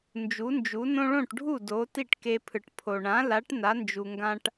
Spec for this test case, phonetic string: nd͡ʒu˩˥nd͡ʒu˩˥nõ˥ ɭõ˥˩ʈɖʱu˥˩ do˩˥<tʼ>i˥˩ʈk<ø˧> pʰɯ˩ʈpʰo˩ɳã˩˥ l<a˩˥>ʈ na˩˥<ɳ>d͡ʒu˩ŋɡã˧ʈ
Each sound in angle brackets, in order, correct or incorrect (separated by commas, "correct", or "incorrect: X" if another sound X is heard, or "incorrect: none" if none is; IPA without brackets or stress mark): incorrect: t, incorrect: e˧, correct, incorrect: n